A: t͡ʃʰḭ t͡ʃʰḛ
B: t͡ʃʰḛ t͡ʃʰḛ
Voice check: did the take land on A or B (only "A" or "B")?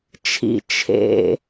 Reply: A